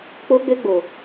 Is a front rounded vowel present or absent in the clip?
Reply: present